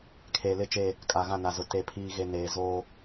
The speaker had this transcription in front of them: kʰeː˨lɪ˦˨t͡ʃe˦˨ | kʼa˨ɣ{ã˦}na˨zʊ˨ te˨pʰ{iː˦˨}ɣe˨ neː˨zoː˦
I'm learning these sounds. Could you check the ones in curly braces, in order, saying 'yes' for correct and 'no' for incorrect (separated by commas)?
no, no